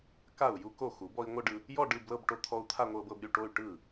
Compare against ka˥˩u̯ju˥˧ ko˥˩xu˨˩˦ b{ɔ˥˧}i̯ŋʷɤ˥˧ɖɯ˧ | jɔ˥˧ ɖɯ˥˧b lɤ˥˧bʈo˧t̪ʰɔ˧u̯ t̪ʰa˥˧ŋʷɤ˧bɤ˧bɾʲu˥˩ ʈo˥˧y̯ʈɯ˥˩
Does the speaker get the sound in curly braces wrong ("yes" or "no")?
yes